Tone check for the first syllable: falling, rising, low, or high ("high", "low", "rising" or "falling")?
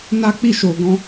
high